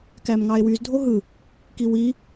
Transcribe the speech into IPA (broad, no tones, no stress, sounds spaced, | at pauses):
k æ m ŋ ɑ e̯ w y z dʱ o ɦ ɯ | k i w i